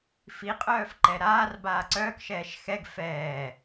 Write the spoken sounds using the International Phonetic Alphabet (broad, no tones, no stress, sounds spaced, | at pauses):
f i qʼ œː f ǃ ɛ ɾ aː r b aː ǀ œː k ʃ ɛː ʃ x ɛ ɡ f ɛː